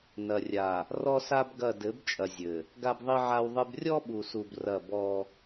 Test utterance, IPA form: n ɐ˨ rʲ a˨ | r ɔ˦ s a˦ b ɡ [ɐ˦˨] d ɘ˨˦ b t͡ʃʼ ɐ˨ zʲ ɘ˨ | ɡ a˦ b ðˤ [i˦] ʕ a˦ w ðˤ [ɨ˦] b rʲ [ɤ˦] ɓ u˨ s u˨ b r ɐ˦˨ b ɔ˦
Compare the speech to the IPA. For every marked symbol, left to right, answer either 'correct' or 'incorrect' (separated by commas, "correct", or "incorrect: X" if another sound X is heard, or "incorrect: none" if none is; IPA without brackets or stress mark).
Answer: correct, correct, correct, incorrect: ɔ˦